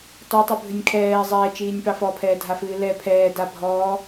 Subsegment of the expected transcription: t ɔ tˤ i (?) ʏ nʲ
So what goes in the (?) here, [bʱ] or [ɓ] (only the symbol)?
bʱ